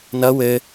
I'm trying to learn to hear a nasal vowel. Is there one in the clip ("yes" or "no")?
no